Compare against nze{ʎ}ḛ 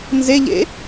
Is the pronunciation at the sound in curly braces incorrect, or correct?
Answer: correct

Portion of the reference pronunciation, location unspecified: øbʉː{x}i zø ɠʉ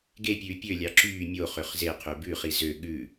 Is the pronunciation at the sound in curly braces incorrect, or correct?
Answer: incorrect: χ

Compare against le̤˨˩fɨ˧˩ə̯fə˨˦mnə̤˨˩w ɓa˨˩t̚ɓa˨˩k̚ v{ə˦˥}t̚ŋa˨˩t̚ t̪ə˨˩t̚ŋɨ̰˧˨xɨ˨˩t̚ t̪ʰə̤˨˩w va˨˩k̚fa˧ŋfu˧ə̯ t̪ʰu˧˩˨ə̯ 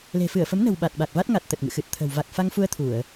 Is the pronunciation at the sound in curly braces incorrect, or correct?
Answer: incorrect: a˦˥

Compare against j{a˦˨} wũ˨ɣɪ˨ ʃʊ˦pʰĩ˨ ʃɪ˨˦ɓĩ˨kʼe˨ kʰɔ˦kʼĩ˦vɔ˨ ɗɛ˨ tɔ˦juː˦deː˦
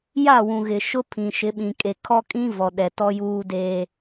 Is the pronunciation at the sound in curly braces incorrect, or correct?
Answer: correct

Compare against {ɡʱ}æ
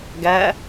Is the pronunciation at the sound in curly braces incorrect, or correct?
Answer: incorrect: ɡ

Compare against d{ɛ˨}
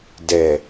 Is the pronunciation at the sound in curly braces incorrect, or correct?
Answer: correct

